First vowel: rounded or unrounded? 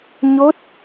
rounded